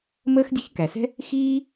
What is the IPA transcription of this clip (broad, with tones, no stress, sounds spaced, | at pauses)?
m əː˥ x dʲ ɛ̤˥ ç k æ˩ s ɛ̤˥ | x iː˥